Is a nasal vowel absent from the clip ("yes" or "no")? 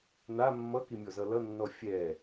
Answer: yes